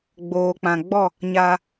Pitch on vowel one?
low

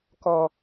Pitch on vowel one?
low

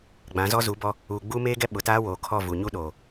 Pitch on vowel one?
rising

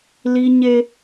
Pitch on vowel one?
high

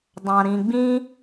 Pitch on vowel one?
low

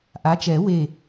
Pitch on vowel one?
rising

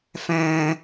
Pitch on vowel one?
high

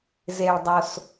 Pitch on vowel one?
low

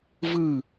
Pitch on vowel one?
falling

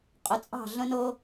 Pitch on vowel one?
rising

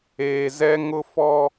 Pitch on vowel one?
low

